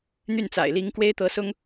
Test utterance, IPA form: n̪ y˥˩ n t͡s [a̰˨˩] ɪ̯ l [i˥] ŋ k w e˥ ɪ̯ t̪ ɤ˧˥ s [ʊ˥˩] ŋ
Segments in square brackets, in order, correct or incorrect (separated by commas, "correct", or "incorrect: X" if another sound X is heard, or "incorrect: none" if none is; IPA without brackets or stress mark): correct, incorrect: i˧˥, incorrect: ʊ˥